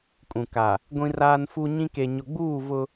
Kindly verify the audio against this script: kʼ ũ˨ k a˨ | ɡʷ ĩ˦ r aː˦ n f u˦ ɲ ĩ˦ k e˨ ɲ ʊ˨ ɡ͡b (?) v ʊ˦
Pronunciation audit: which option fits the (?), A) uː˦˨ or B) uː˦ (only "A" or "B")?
A